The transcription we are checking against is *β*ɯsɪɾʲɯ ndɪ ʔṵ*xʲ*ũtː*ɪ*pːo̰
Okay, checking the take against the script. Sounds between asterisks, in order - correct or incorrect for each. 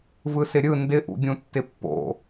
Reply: incorrect: v, incorrect: ɡʲ, correct

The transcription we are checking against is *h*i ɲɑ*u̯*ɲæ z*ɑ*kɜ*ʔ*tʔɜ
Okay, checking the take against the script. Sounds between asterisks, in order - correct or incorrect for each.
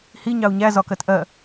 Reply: correct, correct, incorrect: ɒ, incorrect: none

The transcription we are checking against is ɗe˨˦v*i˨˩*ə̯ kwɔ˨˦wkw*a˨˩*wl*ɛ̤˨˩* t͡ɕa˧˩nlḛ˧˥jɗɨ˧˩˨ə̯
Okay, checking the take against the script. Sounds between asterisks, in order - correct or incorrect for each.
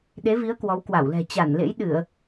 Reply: incorrect: i˨˦, incorrect: a˧˩, correct

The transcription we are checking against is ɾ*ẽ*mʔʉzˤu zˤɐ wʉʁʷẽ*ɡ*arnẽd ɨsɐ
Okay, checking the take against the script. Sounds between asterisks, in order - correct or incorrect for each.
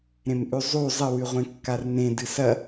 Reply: correct, incorrect: kː

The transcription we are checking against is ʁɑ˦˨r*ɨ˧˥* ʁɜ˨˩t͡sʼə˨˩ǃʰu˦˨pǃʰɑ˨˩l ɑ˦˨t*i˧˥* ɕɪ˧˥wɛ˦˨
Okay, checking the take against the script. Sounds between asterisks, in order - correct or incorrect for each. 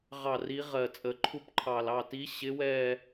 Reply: incorrect: i˧˥, correct

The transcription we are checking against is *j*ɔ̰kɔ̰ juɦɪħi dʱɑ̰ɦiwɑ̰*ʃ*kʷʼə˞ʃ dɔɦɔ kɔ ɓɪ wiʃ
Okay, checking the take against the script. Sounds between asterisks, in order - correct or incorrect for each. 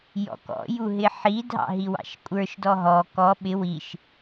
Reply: correct, correct

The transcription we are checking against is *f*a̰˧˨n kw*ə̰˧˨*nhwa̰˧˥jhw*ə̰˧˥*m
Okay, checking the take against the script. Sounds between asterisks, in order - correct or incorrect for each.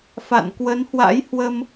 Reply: correct, incorrect: ə˨˦, incorrect: ə˧

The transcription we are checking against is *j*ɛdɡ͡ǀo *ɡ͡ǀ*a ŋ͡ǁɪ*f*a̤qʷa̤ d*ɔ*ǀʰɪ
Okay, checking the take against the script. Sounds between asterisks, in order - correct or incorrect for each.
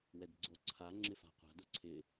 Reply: incorrect: w, incorrect: ǀʰ, correct, incorrect: o

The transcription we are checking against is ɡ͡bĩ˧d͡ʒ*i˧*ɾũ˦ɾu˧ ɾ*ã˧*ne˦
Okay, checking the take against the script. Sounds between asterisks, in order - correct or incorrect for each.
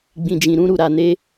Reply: incorrect: ĩ˧, incorrect: a˧

